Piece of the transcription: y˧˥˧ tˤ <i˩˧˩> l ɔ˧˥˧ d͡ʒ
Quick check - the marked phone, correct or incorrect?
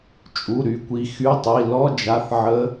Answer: correct